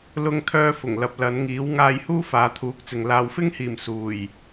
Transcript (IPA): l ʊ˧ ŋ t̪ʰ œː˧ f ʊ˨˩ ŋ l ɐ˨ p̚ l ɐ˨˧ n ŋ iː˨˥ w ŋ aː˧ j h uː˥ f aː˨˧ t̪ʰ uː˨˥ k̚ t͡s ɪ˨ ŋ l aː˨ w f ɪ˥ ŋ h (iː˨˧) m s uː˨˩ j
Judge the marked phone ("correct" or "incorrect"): incorrect